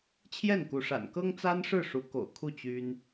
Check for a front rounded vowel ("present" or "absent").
present